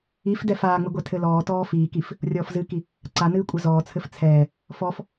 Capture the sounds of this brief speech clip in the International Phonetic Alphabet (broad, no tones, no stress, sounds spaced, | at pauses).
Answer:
i f d ɛ f aː ŋ͡m ɨ ɡʷ ɛ tʰ ɘ l ɔː t ɔː f iː k i f | rʲ ɔː f z ɨ k i | ǀ a n ɨː kʷʼ ɘ z ɔː t͡sʰ ɘ f t͡sʰ ɛː | f ɔ f